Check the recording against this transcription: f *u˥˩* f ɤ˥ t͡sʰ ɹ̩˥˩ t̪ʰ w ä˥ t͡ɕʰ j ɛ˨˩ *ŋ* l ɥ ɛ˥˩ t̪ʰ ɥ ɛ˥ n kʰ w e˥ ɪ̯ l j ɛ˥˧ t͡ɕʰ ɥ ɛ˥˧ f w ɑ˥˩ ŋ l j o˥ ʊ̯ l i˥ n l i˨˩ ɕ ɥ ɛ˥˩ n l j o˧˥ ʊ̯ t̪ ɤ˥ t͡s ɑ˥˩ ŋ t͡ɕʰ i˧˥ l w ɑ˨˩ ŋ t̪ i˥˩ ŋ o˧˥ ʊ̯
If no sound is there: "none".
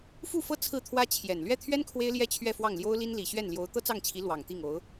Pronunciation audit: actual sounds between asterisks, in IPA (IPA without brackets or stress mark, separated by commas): u˥˩, n